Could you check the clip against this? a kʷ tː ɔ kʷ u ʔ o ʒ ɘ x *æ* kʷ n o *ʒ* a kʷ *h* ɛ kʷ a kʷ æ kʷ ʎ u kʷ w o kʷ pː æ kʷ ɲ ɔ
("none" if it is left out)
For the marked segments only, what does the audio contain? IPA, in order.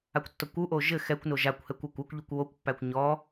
ɛ, ʒ, h

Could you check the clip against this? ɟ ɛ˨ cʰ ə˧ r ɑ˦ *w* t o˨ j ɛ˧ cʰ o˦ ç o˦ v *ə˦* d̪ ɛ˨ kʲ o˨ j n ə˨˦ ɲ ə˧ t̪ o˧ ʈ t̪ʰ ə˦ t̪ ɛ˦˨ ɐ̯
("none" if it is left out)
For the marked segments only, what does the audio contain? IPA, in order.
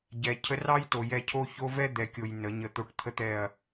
j, ɛ˦

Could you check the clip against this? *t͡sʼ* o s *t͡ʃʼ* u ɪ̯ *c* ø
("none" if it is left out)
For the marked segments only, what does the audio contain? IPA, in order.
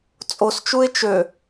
t͡sʼ, t͡ʃ, t͡ʃ

